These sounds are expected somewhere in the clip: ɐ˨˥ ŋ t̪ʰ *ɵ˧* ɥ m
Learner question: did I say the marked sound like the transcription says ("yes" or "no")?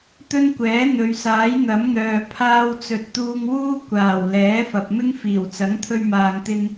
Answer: yes